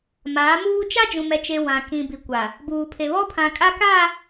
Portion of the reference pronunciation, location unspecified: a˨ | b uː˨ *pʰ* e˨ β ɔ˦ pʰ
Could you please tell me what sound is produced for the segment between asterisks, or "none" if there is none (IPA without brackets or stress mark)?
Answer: pʰ